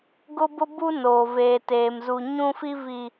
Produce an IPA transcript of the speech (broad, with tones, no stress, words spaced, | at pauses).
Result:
ɡʊ˦bʊ˦bu˦noː˨ veː˨teː˨m zu˨ ɲũ˦fi˦ vi˨